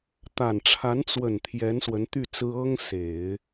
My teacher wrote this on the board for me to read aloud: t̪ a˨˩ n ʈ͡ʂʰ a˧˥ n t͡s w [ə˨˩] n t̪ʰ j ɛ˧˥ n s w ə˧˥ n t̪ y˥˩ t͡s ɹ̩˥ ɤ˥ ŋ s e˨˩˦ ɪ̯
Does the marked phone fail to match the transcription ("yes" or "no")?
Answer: no